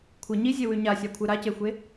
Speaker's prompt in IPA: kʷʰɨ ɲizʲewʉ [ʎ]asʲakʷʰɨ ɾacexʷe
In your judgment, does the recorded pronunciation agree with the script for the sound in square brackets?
no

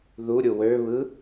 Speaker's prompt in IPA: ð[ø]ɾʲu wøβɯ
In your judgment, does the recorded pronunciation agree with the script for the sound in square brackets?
no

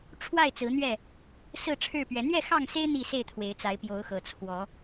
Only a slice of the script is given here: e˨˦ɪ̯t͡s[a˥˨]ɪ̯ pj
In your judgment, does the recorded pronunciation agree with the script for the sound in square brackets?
no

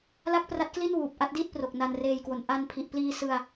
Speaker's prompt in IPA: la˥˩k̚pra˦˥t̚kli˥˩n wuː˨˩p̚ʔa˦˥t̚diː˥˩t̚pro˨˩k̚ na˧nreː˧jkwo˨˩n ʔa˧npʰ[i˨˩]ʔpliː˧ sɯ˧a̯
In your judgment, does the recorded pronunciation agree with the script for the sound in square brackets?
yes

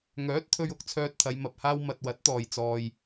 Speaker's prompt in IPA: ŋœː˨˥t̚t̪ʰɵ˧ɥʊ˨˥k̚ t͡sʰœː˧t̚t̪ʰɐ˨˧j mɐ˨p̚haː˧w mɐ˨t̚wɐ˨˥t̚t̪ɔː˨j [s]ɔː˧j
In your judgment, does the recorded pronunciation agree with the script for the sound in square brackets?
no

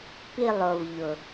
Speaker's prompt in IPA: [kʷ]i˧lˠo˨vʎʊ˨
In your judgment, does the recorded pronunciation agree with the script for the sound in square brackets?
no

